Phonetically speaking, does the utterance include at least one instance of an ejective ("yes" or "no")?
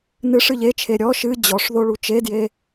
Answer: no